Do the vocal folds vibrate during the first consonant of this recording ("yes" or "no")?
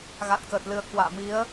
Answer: yes